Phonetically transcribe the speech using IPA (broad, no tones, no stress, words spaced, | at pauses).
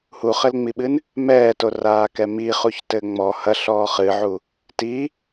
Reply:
huχɘlŋ͡miɓɨn | mɛːtoraːkɛ miχuçtɘ ŋ͡mɔ hɐɬɔː χɨʕu | ti